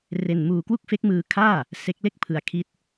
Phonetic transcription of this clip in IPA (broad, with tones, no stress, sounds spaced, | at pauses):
r e˧ n m uː˧ k w u˥˩ k̚ f e˦˥ k̚ m ɯː˧ kʰ aː˥˩ | s e˦˥ k̚ l e˥˩ k̚ pʰ ɯ˧ a̯ kʰ i˦˥ t̚